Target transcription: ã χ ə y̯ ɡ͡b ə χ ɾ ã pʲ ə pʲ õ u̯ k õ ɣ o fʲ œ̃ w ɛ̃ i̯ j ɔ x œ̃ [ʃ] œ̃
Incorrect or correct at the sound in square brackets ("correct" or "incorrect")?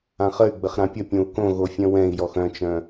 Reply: incorrect